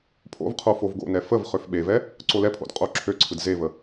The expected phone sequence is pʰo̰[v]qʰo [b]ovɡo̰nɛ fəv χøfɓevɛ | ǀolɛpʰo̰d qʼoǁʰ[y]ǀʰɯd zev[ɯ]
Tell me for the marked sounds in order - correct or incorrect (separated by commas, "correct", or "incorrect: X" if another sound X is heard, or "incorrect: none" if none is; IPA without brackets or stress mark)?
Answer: correct, incorrect: f, incorrect: ø, incorrect: ə